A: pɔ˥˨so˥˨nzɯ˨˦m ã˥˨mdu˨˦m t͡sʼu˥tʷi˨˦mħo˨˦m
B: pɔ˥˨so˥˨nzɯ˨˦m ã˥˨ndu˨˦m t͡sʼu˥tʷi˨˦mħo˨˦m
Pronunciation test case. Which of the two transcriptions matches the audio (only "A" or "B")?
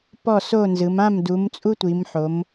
A